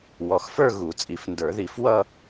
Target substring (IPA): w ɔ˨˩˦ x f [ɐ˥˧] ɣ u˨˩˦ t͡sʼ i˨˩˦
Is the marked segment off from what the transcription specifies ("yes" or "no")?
yes